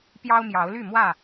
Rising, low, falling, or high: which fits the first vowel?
high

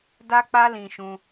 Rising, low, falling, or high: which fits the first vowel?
high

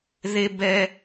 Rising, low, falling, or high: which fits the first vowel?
high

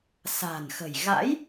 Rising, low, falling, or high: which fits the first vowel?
low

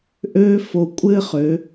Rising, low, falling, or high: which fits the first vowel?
high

